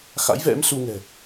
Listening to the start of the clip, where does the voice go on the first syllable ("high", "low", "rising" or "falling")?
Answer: rising